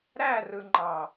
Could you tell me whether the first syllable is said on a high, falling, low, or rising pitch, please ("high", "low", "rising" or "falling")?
falling